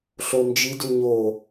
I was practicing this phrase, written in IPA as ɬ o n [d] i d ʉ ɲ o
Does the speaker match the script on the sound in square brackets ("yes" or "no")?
no